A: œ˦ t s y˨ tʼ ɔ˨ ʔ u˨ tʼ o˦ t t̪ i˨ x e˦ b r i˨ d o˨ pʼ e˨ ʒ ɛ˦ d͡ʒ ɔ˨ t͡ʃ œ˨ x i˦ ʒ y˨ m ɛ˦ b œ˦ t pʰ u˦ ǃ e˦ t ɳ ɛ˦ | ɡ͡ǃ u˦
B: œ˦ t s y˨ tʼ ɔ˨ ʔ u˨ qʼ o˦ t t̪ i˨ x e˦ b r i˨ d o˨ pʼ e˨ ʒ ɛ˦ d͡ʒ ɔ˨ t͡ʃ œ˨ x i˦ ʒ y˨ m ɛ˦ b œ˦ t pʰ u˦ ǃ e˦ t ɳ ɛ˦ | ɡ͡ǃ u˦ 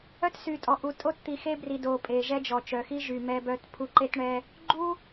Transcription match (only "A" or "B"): A